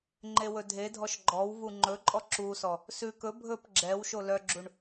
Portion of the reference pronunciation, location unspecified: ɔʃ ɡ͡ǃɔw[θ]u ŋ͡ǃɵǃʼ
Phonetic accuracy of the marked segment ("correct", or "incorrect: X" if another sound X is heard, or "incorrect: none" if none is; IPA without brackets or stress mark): incorrect: v